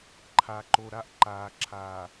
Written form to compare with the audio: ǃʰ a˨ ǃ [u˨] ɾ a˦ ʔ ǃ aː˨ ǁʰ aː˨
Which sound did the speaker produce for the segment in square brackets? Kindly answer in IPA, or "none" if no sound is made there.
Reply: o˨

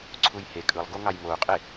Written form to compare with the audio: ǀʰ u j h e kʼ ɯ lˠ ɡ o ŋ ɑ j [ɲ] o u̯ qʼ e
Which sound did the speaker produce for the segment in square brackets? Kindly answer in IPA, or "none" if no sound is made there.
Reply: m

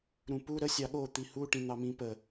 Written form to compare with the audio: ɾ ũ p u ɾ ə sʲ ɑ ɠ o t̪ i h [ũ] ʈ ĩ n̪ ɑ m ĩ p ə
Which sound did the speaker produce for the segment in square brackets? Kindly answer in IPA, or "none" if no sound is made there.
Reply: u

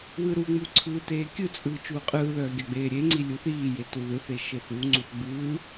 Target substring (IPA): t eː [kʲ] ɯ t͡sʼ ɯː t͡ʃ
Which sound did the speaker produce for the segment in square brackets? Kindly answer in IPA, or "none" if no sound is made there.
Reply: kʲ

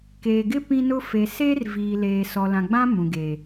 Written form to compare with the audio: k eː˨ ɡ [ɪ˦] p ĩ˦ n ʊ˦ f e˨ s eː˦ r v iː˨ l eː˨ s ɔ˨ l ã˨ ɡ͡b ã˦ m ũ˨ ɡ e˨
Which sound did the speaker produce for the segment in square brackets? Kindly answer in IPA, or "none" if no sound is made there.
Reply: ɪ˦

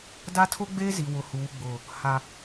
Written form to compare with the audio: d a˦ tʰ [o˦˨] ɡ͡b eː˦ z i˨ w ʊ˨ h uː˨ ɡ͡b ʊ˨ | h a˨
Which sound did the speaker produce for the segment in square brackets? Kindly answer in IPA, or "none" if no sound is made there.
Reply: o˦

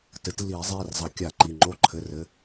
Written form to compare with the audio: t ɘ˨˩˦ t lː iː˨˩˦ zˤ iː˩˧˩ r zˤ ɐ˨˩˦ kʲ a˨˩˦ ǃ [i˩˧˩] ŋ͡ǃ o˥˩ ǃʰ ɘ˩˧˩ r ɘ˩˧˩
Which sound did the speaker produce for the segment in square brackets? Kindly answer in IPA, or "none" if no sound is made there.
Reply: i˩˧˩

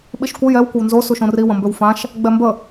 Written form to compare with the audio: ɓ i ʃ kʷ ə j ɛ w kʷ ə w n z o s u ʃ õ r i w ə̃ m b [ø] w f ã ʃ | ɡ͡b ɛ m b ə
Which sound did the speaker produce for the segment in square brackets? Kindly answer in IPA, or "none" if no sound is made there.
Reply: ø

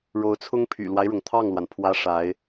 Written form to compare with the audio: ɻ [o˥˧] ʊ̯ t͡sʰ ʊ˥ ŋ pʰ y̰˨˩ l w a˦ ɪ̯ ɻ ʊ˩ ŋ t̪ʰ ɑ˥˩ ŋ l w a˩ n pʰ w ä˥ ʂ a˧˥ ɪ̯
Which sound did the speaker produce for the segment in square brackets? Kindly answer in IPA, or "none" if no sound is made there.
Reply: o˧˥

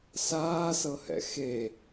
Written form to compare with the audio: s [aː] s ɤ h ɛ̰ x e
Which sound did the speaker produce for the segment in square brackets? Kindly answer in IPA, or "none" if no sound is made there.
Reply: aː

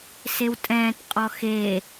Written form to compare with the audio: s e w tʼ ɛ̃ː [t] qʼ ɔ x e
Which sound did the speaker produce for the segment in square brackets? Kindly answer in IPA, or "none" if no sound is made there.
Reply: t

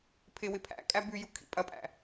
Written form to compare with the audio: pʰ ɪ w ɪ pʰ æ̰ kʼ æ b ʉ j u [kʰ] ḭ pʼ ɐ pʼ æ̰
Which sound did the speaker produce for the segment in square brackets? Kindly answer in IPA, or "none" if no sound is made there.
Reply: kʰ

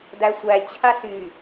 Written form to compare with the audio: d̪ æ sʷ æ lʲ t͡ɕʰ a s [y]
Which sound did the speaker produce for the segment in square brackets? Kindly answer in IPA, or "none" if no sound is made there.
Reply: y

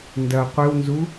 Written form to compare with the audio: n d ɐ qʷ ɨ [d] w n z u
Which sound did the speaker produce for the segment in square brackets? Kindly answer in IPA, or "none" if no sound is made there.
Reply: none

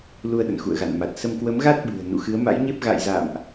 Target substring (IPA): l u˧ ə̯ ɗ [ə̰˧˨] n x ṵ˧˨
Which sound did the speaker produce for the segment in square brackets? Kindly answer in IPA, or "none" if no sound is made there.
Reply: ə̰˧˨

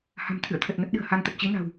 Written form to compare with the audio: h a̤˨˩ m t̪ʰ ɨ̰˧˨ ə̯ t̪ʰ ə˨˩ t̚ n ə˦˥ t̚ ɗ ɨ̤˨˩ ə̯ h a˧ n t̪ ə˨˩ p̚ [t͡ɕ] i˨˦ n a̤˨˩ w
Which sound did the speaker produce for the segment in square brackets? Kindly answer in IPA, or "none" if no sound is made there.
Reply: t͡ɕ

